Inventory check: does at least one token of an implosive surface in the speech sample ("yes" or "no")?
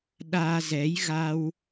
yes